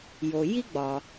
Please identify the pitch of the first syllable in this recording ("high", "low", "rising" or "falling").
low